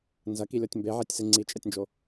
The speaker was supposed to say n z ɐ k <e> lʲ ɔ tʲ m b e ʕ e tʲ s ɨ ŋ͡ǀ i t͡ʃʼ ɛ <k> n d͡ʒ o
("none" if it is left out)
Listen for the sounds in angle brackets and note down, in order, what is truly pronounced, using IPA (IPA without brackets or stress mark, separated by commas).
i, tʲ